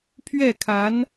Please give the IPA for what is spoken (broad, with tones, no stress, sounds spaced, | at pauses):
pʰ ɥ ɛ˥˩ kʰ a˧˥ n